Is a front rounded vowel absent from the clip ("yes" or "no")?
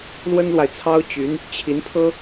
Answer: no